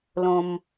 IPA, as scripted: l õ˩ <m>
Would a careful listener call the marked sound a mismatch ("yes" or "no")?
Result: no